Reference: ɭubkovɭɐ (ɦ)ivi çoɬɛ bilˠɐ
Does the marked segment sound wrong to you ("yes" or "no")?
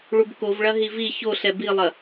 no